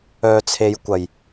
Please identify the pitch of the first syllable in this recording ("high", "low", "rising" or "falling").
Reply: low